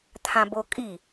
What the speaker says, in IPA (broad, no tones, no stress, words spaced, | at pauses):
t̪ʰãbokʼi